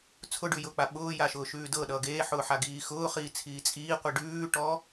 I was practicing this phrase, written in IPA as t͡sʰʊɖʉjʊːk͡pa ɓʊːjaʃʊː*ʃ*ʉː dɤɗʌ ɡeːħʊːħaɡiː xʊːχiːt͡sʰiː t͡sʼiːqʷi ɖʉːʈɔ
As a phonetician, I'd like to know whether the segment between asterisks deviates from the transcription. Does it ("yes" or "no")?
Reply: no